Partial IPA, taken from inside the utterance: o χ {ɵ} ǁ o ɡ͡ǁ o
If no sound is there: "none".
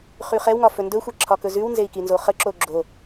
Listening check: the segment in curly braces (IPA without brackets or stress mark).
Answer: ə